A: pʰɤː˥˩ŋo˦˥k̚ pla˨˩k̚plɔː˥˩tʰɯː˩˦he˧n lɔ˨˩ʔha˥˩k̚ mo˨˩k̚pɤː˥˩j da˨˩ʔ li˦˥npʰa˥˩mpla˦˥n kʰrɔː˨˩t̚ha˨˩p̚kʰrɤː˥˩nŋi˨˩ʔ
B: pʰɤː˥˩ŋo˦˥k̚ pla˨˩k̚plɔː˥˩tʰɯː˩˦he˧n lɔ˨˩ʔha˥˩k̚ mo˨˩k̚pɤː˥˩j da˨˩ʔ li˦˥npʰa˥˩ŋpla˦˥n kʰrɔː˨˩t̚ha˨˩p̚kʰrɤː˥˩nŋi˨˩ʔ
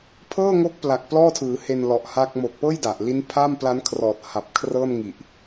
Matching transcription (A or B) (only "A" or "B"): A